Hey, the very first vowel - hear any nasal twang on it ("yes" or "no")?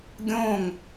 yes